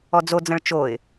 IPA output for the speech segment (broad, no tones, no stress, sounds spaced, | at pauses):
ɔ d͡z o d͡z ə̃ ɭ t͡ʃ o ɪ̯